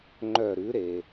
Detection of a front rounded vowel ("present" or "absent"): present